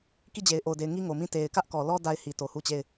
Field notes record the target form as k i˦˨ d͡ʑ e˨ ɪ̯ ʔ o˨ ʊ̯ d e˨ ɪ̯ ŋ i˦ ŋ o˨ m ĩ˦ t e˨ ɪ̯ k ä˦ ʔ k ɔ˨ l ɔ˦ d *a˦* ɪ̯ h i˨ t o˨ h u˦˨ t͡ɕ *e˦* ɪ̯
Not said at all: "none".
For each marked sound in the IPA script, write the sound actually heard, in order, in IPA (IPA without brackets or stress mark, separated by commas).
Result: a˦, e˦˨